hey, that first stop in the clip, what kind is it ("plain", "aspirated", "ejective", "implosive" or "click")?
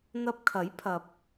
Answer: plain